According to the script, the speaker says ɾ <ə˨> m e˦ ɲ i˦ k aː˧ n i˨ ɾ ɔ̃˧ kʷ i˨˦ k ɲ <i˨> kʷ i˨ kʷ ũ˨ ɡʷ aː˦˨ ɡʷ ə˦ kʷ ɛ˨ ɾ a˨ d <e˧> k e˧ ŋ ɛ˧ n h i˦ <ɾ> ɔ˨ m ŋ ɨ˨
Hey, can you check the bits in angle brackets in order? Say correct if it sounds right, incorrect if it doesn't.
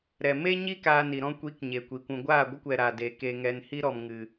incorrect: ɛ˨, incorrect: e˨, incorrect: e˨, correct

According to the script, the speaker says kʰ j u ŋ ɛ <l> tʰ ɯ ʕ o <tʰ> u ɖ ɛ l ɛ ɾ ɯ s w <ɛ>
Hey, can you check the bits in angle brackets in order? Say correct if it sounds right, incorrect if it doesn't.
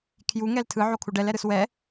correct, incorrect: kʰ, correct

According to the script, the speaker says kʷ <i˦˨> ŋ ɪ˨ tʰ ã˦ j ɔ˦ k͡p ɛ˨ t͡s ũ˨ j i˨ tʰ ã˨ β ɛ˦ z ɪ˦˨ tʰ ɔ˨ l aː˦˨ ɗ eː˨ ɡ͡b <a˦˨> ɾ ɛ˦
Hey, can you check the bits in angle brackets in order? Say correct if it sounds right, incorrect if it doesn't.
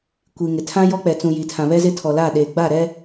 incorrect: i˨, correct

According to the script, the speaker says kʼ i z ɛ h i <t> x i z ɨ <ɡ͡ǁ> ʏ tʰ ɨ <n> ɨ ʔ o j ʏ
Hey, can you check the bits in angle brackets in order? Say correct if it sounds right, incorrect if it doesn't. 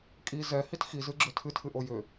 correct, correct, incorrect: tʰ

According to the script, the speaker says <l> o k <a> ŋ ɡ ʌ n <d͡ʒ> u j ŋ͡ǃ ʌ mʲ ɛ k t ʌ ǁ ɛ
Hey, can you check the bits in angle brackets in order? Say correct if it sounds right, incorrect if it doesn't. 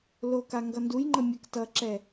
correct, correct, incorrect: d

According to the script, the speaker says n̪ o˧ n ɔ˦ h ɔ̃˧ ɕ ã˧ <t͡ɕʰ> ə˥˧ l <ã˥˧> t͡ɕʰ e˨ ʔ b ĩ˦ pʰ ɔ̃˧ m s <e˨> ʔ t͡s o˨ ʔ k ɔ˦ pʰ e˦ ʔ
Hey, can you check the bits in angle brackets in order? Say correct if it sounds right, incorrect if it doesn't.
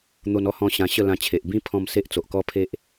incorrect: ɕ, incorrect: ã˧, incorrect: e˦

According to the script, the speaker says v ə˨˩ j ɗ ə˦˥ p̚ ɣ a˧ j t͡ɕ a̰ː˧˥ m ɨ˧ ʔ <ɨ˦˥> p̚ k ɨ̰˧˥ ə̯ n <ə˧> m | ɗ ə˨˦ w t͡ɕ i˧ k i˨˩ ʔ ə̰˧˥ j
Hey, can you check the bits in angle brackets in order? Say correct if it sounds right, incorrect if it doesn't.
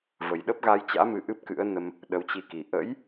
correct, correct

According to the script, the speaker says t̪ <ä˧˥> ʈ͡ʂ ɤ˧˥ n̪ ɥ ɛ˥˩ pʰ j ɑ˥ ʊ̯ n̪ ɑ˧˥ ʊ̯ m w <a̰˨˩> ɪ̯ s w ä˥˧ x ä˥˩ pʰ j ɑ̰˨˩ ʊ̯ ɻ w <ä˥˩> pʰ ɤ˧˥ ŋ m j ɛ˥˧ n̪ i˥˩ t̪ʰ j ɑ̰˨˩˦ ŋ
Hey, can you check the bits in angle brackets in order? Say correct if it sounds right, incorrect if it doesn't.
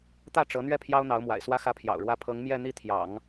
incorrect: ä˥˩, correct, correct

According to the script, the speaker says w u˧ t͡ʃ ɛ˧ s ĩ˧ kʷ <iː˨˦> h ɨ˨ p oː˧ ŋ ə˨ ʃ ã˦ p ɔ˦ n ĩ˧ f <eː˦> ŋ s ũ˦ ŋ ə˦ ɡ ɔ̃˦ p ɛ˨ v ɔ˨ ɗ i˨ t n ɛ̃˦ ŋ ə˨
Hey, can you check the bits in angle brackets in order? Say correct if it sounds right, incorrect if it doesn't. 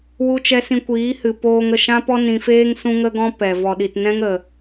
correct, correct

